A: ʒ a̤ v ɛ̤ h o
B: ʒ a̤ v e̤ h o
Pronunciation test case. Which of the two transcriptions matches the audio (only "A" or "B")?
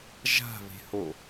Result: B